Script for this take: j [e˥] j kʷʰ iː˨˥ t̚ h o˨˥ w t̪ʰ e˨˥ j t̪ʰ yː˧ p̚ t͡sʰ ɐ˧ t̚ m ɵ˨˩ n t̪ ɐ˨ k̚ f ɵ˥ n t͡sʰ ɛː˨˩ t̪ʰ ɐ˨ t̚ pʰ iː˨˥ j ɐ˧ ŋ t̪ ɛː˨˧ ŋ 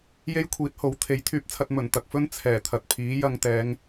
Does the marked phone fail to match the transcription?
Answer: no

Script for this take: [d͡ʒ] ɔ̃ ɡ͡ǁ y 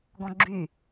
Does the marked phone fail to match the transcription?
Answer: yes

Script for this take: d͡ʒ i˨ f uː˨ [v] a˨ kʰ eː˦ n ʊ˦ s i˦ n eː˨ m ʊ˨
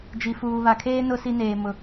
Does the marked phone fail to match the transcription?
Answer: yes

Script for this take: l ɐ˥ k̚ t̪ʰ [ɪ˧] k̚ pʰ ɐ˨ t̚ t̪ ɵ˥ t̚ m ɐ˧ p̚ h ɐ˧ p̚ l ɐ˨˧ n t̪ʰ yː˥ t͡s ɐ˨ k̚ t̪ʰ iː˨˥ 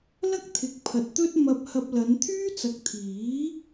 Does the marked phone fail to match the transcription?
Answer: yes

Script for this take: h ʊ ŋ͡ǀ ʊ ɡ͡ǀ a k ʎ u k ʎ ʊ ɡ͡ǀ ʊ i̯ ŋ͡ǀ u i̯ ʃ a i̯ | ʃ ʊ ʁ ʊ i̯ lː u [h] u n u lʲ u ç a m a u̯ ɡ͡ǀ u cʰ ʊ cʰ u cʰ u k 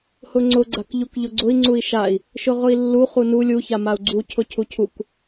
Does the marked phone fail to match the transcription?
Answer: yes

